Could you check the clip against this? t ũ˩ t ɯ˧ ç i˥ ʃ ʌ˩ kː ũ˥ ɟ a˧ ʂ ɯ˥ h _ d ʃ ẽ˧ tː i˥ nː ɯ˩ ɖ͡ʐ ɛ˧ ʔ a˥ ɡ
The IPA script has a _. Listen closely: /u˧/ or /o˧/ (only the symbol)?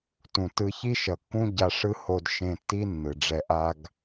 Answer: o˧